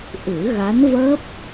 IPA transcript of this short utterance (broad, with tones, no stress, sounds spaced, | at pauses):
ʔ ɨ˨˩˦ ɣ a˧˥ n v əː˦˥ p̚